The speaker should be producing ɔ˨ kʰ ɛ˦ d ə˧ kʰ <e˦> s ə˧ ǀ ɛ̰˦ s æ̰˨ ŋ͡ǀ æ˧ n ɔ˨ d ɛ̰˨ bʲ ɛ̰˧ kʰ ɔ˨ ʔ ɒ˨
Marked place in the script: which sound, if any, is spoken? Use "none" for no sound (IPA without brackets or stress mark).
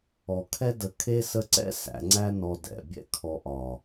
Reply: e˦